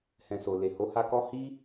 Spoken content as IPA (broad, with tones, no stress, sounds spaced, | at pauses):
h ɛ̃˨ s o˨ l e˨ h o˨˦ h a˧ k ɔ˦ h i˦